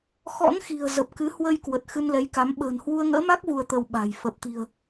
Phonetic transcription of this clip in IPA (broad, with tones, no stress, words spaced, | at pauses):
xɔ̰˧˥nxi̤˨˩ə̯ zə˨˩p̚kɨ˨˦hwə˧jkwə˨˩t̚ xɨ˧nlɛ˨˦jka˨˦m ɓə̤ː˨˩nhwu˧ə̯ŋə̰ː˧˥ma˦˥k̚ vu˧ə̯t̪ə˧wɓa̤˨˩j fə˨˩p̚t̪i̤˨˩ə̯